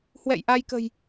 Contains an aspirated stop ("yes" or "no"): no